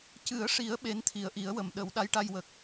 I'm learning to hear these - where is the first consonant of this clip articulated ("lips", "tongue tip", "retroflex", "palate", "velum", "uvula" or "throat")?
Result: palate